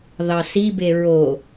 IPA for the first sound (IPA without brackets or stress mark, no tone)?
ð